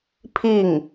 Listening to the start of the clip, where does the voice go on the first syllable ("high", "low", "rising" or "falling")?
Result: falling